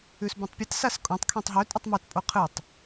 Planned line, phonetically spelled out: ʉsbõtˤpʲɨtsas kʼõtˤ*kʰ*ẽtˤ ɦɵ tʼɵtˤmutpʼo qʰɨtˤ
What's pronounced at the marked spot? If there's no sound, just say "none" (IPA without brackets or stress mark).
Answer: kʰ